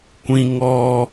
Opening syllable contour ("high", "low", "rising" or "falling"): high